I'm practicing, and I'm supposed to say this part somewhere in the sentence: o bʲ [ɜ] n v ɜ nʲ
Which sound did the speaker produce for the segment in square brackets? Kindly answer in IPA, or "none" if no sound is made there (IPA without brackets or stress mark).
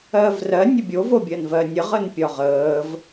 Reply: ɜ